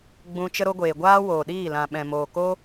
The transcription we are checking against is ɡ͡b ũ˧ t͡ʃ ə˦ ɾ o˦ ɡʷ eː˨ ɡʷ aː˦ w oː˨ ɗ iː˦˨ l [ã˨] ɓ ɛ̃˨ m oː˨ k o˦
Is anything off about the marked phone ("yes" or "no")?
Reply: no